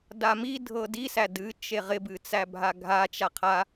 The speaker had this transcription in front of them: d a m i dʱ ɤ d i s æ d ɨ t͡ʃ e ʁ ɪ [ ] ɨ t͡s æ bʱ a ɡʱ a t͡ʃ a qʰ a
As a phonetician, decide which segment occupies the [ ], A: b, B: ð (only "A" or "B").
A